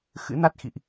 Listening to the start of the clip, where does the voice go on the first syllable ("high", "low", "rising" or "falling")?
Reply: rising